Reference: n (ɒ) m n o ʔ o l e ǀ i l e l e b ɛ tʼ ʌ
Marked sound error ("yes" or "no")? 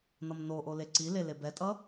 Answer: yes